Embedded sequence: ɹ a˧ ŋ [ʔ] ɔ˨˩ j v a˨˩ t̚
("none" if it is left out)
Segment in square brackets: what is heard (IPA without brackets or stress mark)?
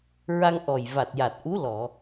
ʔ